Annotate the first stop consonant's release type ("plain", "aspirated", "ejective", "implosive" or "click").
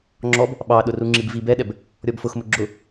click